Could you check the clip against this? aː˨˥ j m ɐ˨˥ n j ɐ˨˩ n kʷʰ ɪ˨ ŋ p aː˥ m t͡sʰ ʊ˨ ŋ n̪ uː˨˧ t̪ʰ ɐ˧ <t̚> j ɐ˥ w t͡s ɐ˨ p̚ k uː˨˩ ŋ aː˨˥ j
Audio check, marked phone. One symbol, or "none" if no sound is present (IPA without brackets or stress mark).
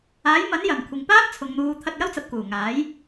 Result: t̚